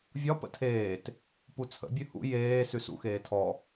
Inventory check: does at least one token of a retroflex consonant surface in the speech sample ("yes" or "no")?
no